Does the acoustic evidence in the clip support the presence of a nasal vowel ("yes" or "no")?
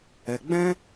yes